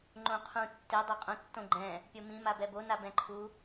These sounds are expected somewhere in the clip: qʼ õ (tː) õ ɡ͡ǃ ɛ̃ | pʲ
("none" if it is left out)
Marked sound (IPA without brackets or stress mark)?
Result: tː